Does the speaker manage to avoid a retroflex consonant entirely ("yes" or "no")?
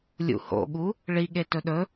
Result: no